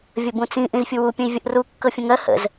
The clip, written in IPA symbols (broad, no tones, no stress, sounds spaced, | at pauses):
vʲ ə b ũ t͡s ĩ ʔ ĩ z fʲ u w u pʲ ə̃ i̯ vʲ ə ʔ r u kː ɤ fʲ ə̃ ŋ ɜ h ə̰ z